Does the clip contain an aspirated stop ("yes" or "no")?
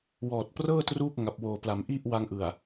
no